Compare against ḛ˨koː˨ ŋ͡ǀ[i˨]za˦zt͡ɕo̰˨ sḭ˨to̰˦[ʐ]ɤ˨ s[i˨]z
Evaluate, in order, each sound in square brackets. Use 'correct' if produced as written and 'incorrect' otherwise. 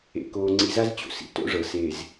correct, correct, incorrect: e˨

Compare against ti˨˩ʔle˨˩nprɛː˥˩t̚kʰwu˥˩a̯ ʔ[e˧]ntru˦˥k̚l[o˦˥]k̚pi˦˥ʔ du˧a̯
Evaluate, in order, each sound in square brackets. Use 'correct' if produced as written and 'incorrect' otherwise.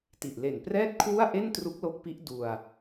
incorrect: e˥˩, correct

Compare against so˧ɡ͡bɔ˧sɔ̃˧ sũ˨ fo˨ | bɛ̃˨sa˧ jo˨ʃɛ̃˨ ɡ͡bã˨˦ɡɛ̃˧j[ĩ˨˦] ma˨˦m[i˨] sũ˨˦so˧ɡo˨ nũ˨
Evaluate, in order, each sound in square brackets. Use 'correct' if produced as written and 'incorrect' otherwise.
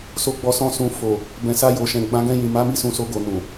incorrect: ĩ˨, incorrect: i˦˨

